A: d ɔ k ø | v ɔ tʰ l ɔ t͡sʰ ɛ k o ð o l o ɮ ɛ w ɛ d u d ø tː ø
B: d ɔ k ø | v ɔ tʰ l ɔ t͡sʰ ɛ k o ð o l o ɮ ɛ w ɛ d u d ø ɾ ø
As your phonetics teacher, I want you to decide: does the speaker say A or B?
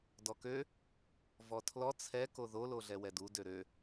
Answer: B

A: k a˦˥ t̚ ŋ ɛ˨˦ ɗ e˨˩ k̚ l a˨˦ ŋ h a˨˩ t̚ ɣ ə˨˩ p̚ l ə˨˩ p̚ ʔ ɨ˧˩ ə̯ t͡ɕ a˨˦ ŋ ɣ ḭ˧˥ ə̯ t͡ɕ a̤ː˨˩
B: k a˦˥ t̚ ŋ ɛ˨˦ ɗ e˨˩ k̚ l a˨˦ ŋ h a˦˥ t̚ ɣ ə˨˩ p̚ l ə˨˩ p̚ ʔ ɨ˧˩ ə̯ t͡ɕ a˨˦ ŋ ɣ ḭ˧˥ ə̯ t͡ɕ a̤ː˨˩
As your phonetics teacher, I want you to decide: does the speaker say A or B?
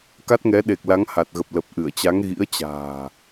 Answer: A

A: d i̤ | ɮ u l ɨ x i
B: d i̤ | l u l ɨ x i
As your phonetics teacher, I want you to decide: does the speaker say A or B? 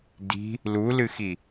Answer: B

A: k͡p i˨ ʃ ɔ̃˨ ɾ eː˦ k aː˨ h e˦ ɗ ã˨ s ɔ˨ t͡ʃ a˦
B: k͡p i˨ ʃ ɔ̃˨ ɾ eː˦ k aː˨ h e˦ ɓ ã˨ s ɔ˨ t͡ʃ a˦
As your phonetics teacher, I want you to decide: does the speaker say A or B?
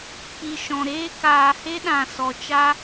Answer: A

